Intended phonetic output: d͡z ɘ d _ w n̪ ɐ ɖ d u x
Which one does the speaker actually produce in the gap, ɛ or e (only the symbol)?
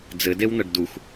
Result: e